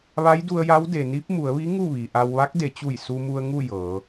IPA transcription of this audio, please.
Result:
ʋ a˧˥ j d u˧ ə̯ j a˧˥ w d e˩ n i˧˥ p̚ m u˩˧ ə̯ ʋ i˧˥ ŋ u˥˨ ʋ i˩ ʔ a˧ w ʋ a˧˥ k̚ d e˩˧ t͡ɕ u˧˩ j s u˧ m u˧ ə̯ ŋ u˥˨ j ɤː˩˧

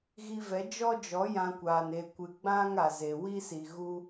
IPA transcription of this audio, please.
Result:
ɣ i˧ v ɛ˨˦ d͡ʒ ɔ˦ d͡ʒ ɔ˨˦ j ã˧ kʷ aː˨ n e˨ kʷ ɨ˨ ɡ͡b ã˦ ŋ a˨ z e˨ w i˦ s i˨ ɣ u˧

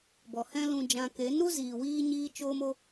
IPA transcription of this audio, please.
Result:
b ɔ˨ h ɛ̃˦ l ũ˧ d͡ʒ ã˧ k e˨˦ n ɾ u˦ z iː˨ w iː˦ ɲ iː˦ t͡ʃ oː˦ m o˦

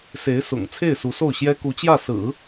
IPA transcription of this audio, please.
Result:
s e˧˥ ɪ̯ s ʊ̰˨˩ ŋ t͡sʰ e˥˩ ɪ̯ s u˧˥ s o˥˩ ʊ̯ ɕ j ɛ˥ k u˧˥ t͡ɕ j ä˥˩ s ɹ̩˨˩˦

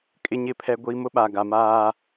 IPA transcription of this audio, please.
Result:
kʼ ɪ˦ ɲ ɪ˦˨ pʰ ɛ˦ ɡʷ iː˦ m ʊ˦ ɓ a˨ ɡ a˨ m aː˦

